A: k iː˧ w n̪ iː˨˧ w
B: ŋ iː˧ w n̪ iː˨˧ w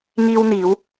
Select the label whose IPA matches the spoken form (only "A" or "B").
B